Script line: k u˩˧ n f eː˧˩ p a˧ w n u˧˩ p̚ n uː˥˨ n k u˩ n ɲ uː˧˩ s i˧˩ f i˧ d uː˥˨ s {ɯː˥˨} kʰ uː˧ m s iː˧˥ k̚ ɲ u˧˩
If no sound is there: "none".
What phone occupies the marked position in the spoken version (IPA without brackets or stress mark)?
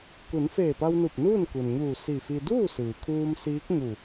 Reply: ɯː˩